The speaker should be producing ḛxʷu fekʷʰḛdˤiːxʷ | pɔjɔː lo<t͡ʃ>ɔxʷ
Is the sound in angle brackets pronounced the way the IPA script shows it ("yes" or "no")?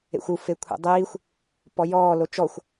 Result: yes